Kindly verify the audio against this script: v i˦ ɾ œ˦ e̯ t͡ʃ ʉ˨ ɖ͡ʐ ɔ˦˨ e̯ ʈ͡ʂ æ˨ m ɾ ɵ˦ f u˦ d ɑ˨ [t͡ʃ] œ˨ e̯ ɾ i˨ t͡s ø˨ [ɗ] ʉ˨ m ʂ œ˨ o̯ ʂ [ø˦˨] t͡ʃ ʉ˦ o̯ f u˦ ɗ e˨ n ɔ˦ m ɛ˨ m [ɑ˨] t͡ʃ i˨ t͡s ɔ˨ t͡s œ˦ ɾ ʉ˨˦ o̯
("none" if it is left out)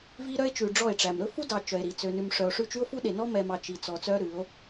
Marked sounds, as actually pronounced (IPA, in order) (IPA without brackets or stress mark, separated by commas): t͡ʃ, n, ʉ˦˨, ɑ˨